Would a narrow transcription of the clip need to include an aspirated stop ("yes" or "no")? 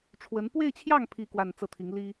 yes